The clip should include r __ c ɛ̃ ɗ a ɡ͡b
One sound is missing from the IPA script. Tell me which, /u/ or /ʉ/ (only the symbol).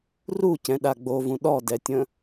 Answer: u